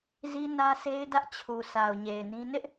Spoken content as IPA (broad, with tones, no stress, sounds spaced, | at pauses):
z i˦ n ä˦ sʰ e˦ ɪ̯ d ä˦ ʔ t͡ɕʰ u˨ sʰ a˨ ʊ̯ ɲ e˨ ɪ̯ n ĩ˦ n ɪ˦ ʔ